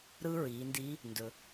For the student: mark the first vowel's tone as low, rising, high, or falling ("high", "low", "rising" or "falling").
high